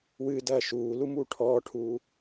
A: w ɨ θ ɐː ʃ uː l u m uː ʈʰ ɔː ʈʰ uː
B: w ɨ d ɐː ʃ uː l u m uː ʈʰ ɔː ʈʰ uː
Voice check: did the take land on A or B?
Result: B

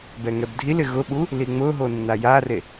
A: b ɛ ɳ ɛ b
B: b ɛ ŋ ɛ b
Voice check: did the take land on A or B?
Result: B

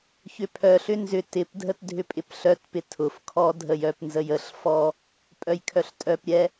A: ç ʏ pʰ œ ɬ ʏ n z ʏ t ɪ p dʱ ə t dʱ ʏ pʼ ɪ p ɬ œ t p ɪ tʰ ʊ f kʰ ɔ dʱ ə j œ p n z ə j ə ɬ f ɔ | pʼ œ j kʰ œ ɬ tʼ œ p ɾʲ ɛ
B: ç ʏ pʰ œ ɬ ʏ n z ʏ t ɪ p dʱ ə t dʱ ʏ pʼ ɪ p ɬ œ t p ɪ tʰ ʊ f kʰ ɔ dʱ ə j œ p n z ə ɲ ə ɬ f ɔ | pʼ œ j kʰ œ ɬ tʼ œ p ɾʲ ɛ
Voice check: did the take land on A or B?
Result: A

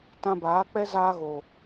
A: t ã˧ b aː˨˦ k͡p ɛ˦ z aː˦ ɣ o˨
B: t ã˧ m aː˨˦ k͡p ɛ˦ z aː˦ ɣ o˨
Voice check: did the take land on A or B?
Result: A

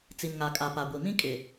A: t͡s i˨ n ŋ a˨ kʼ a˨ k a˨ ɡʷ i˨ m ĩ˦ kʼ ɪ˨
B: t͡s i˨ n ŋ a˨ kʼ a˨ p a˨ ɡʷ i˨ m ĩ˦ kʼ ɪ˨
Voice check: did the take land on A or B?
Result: B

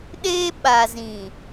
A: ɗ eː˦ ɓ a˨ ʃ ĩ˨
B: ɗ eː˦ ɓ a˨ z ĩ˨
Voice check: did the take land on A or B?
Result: B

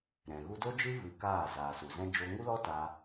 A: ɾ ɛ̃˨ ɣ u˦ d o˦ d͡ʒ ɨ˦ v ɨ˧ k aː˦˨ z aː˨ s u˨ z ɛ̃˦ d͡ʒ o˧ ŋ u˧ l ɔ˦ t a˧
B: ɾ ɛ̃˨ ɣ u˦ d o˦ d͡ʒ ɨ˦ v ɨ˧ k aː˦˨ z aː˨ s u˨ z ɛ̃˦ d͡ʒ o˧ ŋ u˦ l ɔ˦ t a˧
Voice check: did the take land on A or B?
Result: B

